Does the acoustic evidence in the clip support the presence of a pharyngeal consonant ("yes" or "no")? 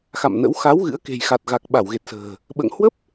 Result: no